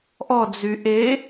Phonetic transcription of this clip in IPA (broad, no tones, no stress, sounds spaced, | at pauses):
ʔ ɔ d͡z y ʔ e